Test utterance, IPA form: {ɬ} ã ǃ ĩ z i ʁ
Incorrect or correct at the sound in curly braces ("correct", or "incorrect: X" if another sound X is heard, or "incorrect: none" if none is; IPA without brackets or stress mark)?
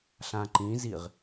correct